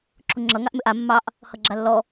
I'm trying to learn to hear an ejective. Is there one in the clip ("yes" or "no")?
no